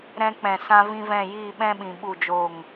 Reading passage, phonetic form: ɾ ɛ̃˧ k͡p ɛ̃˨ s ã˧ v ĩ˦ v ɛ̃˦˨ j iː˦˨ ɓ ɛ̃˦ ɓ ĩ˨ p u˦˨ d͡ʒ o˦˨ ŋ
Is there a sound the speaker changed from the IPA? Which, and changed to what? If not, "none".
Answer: p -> ɓ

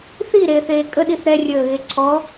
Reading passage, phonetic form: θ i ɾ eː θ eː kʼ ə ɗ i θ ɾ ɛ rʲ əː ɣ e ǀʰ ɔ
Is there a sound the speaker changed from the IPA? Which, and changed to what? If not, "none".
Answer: none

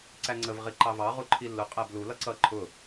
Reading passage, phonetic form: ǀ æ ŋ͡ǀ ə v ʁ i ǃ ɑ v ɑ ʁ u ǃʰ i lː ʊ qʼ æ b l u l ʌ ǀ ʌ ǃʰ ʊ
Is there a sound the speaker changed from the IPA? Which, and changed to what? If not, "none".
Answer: none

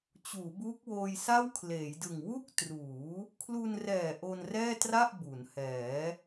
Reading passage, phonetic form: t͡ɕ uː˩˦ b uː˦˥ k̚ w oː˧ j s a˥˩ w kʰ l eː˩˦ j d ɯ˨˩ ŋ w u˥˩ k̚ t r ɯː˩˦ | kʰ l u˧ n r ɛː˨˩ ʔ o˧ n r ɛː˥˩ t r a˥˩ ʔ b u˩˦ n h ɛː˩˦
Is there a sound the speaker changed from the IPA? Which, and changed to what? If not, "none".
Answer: ɯː˩˦ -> uː˩˦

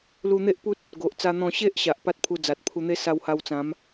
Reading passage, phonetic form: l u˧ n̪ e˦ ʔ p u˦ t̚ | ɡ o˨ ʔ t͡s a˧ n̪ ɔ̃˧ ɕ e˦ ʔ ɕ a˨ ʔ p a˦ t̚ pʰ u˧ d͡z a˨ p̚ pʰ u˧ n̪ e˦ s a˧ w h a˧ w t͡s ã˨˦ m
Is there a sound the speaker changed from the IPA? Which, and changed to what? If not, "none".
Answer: p̚ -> t̚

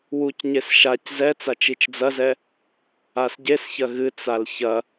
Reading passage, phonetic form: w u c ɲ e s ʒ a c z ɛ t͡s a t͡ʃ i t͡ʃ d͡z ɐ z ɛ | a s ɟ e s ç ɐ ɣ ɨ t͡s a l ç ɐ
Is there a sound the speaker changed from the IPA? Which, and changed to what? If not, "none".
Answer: ʒ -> ʃ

